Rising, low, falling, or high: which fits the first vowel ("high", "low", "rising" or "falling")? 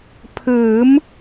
rising